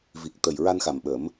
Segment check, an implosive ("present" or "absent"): present